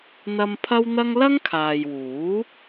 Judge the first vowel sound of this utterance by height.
low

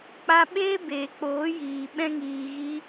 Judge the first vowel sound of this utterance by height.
low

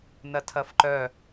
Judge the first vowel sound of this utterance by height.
low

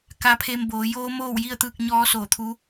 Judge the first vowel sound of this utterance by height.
low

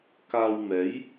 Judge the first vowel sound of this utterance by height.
low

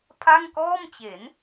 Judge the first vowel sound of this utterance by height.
low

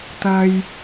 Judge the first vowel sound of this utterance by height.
low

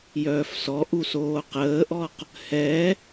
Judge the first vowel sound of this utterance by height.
mid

